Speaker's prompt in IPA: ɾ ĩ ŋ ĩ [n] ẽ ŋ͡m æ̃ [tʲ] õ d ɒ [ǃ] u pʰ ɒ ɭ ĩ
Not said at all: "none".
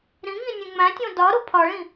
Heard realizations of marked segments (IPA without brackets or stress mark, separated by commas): nʲ, tʲ, ɾ